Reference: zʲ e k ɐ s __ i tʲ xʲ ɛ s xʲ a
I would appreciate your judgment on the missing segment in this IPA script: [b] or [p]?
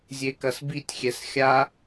b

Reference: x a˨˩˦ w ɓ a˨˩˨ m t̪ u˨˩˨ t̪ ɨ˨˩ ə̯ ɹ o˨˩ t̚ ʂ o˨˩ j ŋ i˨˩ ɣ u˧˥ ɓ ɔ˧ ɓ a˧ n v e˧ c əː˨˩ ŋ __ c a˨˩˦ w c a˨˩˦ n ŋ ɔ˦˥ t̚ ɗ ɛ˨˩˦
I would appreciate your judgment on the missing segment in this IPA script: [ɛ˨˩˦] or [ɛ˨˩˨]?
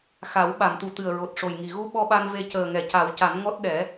ɛ˨˩˨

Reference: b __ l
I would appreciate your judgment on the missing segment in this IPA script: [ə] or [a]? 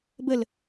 ə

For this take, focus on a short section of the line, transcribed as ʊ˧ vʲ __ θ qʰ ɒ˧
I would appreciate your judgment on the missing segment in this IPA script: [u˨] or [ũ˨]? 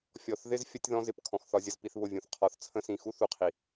ũ˨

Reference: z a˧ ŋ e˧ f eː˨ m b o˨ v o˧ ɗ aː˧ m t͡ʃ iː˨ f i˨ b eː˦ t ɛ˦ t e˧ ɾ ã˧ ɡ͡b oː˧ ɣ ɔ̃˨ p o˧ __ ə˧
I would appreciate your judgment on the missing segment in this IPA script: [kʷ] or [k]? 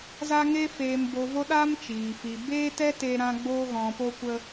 kʷ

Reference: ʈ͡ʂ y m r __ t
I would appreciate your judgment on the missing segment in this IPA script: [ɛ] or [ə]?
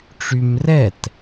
ɛ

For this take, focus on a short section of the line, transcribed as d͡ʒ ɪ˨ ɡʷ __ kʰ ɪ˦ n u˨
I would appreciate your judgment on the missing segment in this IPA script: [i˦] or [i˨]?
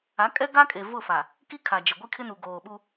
i˦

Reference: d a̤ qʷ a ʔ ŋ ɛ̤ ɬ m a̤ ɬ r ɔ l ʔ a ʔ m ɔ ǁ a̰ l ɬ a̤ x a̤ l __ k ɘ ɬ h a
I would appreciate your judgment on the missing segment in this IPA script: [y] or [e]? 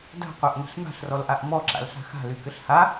y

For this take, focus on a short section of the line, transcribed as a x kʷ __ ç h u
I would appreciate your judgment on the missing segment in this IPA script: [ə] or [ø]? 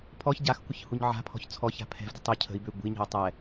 ə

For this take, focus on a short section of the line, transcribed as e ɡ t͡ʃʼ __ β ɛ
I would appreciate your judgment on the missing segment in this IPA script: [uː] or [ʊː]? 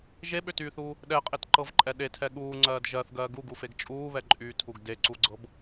uː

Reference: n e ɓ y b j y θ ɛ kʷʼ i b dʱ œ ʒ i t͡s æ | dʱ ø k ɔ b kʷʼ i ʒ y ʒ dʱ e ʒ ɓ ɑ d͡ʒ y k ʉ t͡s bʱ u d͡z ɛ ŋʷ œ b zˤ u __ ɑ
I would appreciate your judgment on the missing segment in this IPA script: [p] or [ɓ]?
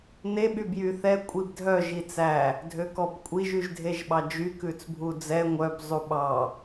ɓ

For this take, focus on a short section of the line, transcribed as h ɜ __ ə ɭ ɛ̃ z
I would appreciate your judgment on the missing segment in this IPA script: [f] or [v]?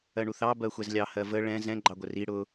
v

